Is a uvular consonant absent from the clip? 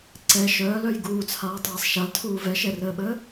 yes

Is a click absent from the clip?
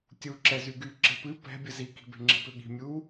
no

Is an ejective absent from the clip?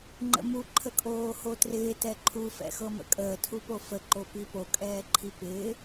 no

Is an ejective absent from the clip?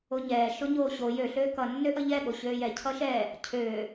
yes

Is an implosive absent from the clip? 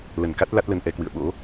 no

